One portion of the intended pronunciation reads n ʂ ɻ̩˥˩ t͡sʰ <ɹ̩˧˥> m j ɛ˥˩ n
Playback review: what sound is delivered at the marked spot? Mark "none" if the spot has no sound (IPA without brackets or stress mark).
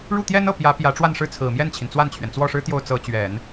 ɹ̩˨˩